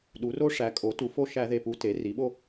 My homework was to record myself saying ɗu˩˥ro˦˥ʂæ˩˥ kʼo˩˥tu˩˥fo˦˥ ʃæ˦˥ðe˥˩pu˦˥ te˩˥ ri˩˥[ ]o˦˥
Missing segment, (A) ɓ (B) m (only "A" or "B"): A